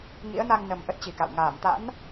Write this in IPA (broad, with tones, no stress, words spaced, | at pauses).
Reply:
ŋḭ˧˥ə̯na˧ŋnə˨˩m ʔə˦˥t̚t͡ɕi˨˩ka̰˧˨w ŋaː˧˩mt̪a̰˧˥n